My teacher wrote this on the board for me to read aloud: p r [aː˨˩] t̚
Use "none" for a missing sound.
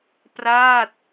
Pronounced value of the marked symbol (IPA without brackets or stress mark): aː˥˩